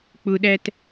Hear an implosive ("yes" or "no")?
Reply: yes